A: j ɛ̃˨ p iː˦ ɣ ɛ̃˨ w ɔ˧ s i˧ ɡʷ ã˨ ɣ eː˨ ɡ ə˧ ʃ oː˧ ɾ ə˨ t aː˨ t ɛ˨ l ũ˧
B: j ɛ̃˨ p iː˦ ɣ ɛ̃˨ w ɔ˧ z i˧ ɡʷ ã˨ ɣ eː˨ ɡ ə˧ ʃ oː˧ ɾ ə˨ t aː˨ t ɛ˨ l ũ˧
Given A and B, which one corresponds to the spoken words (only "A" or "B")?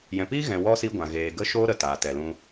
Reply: A